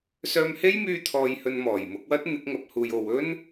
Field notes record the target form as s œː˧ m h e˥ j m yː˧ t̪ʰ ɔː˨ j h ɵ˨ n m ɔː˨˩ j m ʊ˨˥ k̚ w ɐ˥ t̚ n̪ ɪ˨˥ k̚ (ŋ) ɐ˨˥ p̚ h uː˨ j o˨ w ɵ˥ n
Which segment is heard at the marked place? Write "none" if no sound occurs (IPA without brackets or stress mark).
ŋ